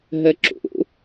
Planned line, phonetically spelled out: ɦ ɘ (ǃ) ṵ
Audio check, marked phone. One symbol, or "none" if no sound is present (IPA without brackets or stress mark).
ǁ